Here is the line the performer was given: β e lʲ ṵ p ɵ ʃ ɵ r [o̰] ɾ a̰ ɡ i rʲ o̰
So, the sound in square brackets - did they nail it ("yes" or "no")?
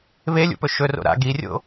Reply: yes